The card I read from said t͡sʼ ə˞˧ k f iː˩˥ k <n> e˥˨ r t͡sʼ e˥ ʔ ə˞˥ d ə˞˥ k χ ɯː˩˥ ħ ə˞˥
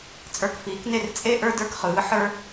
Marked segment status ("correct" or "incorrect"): correct